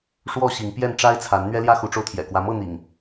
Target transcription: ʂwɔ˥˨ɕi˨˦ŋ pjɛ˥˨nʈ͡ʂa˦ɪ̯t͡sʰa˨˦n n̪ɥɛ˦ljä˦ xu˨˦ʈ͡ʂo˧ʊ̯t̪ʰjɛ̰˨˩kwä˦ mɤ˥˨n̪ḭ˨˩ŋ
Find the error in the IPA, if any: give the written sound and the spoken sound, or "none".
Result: none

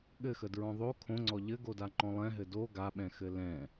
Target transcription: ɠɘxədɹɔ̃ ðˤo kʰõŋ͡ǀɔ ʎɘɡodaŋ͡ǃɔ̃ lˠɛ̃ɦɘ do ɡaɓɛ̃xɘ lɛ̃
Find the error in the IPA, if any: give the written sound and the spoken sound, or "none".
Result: none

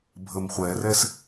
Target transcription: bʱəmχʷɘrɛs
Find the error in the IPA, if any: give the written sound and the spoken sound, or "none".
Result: ɘ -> ɛ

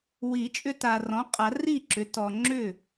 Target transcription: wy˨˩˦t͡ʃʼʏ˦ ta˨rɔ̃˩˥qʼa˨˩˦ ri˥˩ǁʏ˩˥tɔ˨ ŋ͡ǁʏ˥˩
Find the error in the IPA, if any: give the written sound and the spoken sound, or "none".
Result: y˨˩˦ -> i˨˩˦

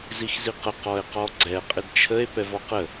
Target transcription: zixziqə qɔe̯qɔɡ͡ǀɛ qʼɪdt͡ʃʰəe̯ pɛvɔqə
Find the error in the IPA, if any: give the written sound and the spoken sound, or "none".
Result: none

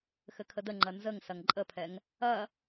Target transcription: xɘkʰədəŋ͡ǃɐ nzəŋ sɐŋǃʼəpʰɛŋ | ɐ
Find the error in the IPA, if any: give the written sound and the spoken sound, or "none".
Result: none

